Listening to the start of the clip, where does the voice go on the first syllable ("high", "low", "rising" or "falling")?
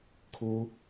high